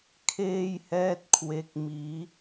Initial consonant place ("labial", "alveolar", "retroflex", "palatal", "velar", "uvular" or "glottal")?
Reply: velar